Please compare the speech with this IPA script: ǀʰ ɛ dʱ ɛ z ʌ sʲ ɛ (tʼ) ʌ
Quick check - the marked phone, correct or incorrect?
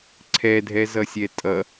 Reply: correct